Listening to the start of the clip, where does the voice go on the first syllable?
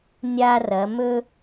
high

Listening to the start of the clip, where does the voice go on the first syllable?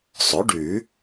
rising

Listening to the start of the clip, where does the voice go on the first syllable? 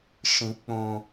low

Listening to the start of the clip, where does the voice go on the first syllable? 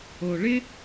low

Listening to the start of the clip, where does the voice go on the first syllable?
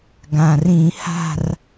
low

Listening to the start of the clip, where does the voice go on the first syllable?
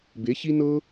rising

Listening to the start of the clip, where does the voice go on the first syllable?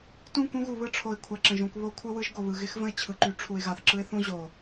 falling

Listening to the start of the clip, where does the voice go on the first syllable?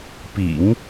low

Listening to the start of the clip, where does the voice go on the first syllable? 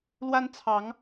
high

